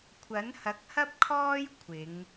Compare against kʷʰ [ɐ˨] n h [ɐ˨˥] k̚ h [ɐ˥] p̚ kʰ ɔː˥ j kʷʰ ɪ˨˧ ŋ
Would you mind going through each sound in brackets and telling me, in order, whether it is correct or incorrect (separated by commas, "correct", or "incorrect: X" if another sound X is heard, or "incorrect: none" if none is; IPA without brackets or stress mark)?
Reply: incorrect: ɐ˨˥, correct, correct